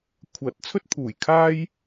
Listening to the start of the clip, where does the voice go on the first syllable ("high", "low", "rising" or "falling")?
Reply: rising